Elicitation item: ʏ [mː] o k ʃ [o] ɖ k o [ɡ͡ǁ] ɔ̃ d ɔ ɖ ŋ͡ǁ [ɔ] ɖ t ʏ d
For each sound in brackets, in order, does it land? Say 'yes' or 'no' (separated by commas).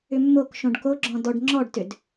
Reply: yes, no, yes, yes